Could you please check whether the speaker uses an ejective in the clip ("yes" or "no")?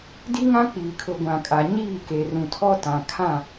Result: yes